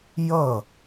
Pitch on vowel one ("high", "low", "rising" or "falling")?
falling